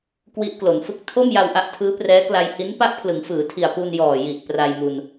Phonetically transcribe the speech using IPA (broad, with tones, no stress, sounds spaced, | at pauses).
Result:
k w i˦˥ ʔ k l o˩˦ n f ɯ˦˥ k̚ tʰ o˥˩ m j a˧ w ʔ a˦˥ ʔ tʰ ɯː˦˥ p r ɛː˦˥ k l a˧ j h i˦˥ n p a˥˩ ʔ pʰ l ɯ˩˦ ŋ f ɯː˩˦ tʰ i˨˩ a̯ p u˧ n j ɔː˨˩ j i˨˩ ʔ p r a˧ j m u˧ n